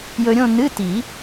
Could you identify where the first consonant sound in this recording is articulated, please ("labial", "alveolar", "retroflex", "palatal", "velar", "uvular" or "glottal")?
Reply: palatal